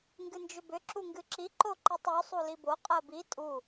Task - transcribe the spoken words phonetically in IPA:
ŋ ɡ ɨ n d͡ʒ ʏ b ʏ ǁ u ŋ ɡ ɨ ǁ i ǃ o ǃ i tˤ u sˤ u l i b o qʼ ɜ b i tʼ u

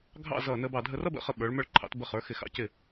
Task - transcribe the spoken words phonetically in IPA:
ɡʱ ɑ̰˥˧ z ʌː˧˩ n əː˧ b ɑ˧˩ dʱ ə˧ r ʌ˥ b ə̰˧ χ ə˧ ɓ ə˞˩˧ ɭ m ə˞˧ ɭ ǃʰ ɑ̰˩˧ t b ə˧ χ ə˞˩˧ x ɪ˧˩ x ɑ̰˧ c ɪ˧˩

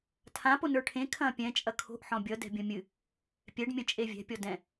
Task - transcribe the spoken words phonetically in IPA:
tʰ ã p o n ə˞ ʈʰ ẽ kʰ ɐ̃ː pʲ ɛ̃ t͡ʃʼ ɐ kʰ o̤ ʔ ħ ɔ̃ bʲ ʌ d ɛ̤ bʲ ɐ̃ mʲ ɨ | pʲ ɛ ɖ mʲ ɐ̃ t͡ʃʼ e vʲ ɛ̤ pʲ ɔ d ɛ̃

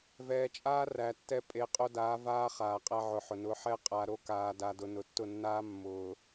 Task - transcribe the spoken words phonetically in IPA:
v ɛː˨ t͡ʃʼ aː˦ r æ˨ tː ɛ˦ pʼ e˨ qʼ o˦ d aː˨˦ v aː˦ χ aː˨ qʼ æ˦ ʕ ʊ˨ ħ ʊ˨ n ʊ˨˦ ħ ɛ˦ qʼ a˨ ɾ o˦ k aː˨ d a˨ d ʊ˨ n ʊ˨ tː ʊ˦˨ nː aː˦ mː ʊː˨

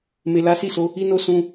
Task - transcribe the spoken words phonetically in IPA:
m e˨ l a˨˦ s i˦˨ s o˨˦ | i˧ n o˧ s ũ˧

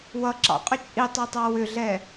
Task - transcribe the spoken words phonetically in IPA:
w ʌ ǁ ɑ̰ qʼ ʏ t͡ʃʼ i tˤ ɛ tˤ ɑ w ʏ ɮ ɛ

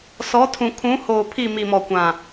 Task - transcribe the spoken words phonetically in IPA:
s ɔ˨˦ tʰ ũ˨ kʰ ũ˨˦ h oː˨ pʰ i˦˨ m i˨ m ɔ˨ kʷ ã˨

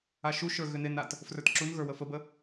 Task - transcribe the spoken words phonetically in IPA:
a ʃ u ʃ ə˞ ɣ ʏ n e n a t | f r ə˞ t ǁ u n ɣ ə˞ w ə f ə b ə

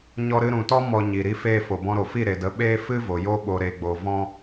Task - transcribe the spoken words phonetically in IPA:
ɲ ɔ˦ ɾ ɨ˧ ɾ ũ˨ t ɔ˦ m ɔ˧ ɲ i˨ ɾ i˧ f eː˧ f o˨ b ɔ̃˧ ɾ o˨ f i˦˨ ɾ e˨ d ə˨˦ ɓ eː˦ f ɨ˦ v o˨ j o˦ ɓ o˧ ɾ e˧ ɡ͡b o˧ v ɔ̃˦

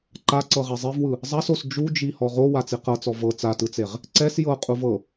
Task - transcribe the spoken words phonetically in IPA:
ǃ a ǀ ɤ ʁ ɛ zˤ e v w ɯ | zˤ a s o s d͡ʒ u d͡ʒ i h ɔ ʁ o w a t͡s i q ɤ t͡s ɔ v ɤ t͡s a t ɯ t͡s e ʁ | ǀ ɛ s j ɤ qʼ u v ɤ

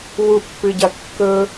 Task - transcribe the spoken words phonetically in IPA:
w u pː ɨ ɟ ɐ kː ɵ

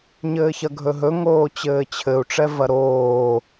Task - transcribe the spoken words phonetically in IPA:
ɲ ɘː ç ɐ ɡʱ ɵ ɦ ɵ ŋ oː t͡ɕ ɘː t͡ɕʰ ɘ u̯ ʈ͡ʂ ɛ v ɐ ɾ oː

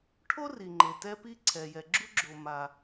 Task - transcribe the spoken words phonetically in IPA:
ʈʰ o˥ r i˩ ŋ͡ǃ e˩ t ɛ˦ p i˦ ǀʰ ɛ˩ j ɛ˩ ɡ͡ǁ u˥ ɡ͡ǁ o˨ m a˩

